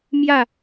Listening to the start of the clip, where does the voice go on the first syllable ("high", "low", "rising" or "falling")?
falling